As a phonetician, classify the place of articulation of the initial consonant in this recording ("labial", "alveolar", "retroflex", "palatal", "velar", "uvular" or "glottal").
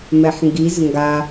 labial